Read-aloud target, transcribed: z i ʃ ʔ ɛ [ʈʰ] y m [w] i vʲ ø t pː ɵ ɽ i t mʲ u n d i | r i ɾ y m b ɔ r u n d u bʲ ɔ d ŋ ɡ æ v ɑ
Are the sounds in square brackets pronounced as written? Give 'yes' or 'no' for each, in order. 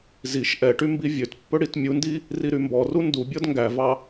no, no

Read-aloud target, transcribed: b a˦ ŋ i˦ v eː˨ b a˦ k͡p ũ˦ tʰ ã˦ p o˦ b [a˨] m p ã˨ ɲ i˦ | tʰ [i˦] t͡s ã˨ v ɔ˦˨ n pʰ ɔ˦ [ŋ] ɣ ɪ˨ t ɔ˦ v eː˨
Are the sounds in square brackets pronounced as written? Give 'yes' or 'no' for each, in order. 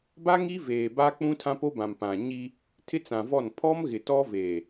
no, no, no

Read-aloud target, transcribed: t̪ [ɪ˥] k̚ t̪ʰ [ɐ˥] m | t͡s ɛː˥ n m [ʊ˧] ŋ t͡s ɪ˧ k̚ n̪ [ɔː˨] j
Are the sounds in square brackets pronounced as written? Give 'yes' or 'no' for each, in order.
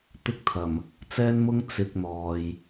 yes, no, no, yes

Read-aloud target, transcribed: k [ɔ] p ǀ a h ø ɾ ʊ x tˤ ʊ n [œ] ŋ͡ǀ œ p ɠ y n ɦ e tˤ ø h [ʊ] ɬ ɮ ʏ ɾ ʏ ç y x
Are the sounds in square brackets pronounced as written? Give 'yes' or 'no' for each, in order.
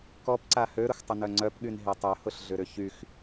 yes, yes, yes

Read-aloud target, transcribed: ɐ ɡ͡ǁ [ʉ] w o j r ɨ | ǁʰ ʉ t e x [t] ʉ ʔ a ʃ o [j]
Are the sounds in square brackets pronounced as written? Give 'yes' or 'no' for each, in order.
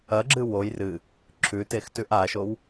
no, yes, no

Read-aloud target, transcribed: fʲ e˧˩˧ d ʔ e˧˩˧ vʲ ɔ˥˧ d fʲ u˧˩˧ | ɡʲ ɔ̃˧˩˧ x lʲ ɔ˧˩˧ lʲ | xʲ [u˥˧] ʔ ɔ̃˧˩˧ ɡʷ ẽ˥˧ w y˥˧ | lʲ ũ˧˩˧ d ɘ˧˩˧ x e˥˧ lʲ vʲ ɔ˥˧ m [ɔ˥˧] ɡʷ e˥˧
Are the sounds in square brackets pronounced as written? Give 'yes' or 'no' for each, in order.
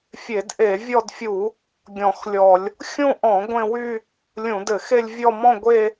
no, no

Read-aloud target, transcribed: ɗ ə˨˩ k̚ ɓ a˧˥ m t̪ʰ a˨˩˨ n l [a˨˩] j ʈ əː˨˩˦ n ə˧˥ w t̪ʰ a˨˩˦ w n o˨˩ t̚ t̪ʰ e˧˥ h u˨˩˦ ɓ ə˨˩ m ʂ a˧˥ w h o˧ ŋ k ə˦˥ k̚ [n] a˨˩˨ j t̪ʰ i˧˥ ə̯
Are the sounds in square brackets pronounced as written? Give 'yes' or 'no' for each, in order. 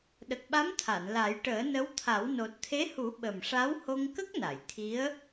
no, yes

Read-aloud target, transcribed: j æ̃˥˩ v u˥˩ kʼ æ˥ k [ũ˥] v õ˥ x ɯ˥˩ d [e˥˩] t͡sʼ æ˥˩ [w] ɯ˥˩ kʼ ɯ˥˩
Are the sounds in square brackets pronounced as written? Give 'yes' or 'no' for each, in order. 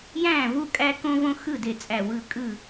no, yes, yes

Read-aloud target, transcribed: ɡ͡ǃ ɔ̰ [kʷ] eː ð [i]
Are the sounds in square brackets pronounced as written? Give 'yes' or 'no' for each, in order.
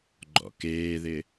no, no

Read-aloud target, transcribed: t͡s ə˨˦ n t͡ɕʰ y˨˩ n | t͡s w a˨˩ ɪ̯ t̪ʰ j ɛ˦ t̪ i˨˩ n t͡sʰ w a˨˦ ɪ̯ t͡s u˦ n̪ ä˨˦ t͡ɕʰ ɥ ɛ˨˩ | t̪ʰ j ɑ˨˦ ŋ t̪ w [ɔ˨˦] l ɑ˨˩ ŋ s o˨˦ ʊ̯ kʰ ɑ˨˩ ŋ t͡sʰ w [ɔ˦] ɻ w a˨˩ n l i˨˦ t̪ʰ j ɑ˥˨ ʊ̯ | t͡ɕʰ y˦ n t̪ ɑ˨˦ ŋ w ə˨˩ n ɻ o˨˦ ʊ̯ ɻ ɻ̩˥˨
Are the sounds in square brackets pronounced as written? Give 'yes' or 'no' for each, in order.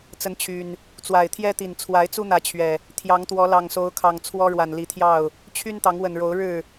yes, yes

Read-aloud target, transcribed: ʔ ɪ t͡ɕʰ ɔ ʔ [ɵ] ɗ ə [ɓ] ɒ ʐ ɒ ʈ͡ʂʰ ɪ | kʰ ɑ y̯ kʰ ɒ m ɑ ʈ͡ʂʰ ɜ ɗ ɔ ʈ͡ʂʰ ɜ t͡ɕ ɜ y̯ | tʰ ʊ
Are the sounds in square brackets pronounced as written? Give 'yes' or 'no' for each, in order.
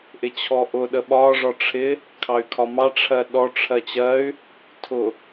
no, yes

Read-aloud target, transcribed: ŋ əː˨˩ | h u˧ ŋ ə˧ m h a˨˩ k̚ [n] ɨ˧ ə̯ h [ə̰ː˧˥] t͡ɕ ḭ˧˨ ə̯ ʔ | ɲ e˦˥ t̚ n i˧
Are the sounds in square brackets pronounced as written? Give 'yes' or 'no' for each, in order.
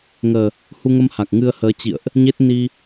no, no

